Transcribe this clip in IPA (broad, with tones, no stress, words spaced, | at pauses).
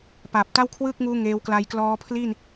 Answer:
paː˨˩p̚ta˥˩wkʰwɯː˥˩k̚ŋuː˦˥ ŋeː˧wkla˧jklɔː˦˥ pʰli˥˩n